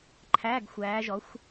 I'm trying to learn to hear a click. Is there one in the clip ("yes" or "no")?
yes